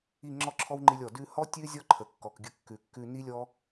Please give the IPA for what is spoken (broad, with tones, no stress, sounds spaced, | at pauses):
i˦˨ ŋ͡ǁ ɔ˦ ǁʰ ɔ˦ w ŋ͡ǃ i˧ lʲ ɔ˨ d ʉ˧ h ɔ˦ tʲ ʉ˦ zʲ ɔ˦ ǃʰ ə˨ kː ɔ˨ k ɡʲ ə˧ kː ʉ˨ kː ʉ˧ n i˦ lʲ ɔ˦